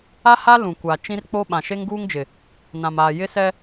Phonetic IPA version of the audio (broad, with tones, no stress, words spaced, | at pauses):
a˦ha˦ lũ˨kʷa˨ t͡ʃĩ˦rk͡po˦ɓã˨ ʃe˦ŋɡuː˦ŋd͡ʒɪ˨ | nã˨maː˨ jɪ˦sɛ˦